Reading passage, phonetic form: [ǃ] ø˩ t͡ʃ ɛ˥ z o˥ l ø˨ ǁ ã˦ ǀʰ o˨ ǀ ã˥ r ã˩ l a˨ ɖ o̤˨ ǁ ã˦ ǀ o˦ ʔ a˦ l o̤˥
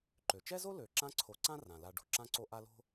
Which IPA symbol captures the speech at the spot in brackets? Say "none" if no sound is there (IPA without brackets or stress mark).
ǃ